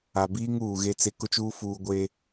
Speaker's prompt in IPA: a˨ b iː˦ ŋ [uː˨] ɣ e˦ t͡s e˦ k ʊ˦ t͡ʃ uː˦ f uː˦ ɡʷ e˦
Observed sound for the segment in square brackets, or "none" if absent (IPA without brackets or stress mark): uː˨